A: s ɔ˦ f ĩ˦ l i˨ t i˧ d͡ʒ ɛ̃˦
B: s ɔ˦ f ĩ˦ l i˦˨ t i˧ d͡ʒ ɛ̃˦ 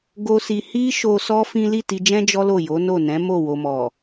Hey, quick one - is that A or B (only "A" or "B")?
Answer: B